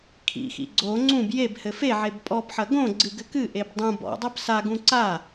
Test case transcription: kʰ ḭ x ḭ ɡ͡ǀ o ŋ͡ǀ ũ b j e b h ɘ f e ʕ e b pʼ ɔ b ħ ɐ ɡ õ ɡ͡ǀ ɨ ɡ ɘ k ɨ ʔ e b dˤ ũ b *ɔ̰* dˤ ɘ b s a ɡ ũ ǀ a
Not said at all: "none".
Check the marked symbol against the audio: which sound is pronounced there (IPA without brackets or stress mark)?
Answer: ɔ̰